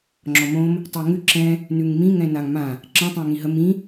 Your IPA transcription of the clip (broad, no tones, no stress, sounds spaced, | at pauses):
ŋ͡ǁ ɔ m õ m | tˤ ɛ ŋ ʉ ǁ ɛ̃ | n ʉ ŋ m ĩ ŋ ɛ̃ n a ŋ m ã | ǁ ə̃ tˤ ɛ̃ ŋ ĩ ɦ ə m ĩ